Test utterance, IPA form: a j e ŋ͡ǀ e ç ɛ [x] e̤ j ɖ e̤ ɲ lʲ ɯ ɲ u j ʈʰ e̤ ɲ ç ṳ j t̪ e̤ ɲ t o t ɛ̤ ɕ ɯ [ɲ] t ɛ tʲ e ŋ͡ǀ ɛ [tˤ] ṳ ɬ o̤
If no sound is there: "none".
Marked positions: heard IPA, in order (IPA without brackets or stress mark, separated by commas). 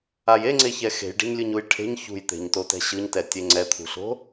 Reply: x, ɲ, t̪ʰ